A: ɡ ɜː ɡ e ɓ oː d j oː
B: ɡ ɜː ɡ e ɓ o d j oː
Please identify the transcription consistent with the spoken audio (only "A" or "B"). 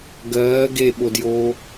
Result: B